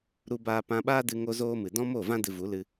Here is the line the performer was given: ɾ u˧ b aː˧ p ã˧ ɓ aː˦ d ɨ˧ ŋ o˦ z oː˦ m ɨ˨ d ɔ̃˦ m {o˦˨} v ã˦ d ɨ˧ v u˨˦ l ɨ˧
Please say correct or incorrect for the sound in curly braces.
correct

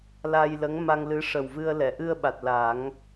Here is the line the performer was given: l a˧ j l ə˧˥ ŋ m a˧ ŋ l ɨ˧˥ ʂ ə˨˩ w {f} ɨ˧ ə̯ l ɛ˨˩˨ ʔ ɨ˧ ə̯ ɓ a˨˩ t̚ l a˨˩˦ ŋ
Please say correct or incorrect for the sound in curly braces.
incorrect: v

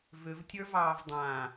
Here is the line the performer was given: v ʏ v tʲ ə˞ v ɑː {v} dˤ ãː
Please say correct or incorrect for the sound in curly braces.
correct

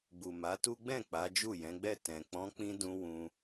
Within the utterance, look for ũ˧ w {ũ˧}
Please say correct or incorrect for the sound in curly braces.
correct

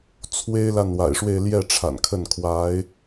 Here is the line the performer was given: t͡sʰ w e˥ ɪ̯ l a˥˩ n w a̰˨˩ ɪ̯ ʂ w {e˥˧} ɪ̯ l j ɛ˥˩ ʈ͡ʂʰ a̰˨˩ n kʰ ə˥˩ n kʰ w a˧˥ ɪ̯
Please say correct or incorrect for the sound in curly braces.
correct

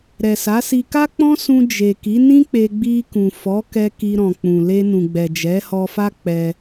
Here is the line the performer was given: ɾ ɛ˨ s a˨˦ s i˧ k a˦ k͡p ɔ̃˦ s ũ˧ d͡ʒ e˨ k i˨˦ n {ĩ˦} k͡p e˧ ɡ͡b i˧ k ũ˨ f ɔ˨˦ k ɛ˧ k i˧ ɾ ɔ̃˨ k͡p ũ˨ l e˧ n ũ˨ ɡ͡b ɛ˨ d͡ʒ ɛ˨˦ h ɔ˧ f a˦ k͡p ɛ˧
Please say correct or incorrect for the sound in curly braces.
correct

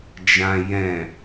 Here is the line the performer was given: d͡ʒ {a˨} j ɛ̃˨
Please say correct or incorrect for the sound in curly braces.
incorrect: ã˨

